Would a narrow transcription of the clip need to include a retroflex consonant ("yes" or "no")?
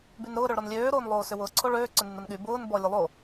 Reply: yes